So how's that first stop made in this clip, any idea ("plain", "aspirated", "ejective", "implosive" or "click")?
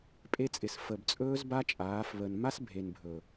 ejective